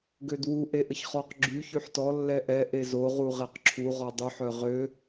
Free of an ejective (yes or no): yes